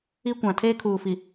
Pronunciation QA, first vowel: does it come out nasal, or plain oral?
oral